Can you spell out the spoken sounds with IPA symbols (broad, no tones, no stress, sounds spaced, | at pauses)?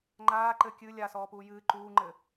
ŋ͡ǃ aː ǃ ɘ kʲ ɨ lʲ a s ɔː p uː j ɨː ǃ uː ŋ͡ǃ ɘ